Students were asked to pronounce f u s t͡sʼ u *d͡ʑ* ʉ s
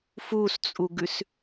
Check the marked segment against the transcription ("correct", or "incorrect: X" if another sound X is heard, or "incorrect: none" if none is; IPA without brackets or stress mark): incorrect: ɡ